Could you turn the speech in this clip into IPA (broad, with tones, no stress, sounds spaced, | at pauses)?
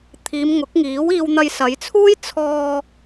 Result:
t̪ʰ iː˨˧ m ŋ ʊ˨˥ k̚ ŋ iː˨˥ w iː˧ w n̪ ɐ˧ j s ɐ˨˧ j t͡sʰ uː˥ j t͡sʰ ɔː˧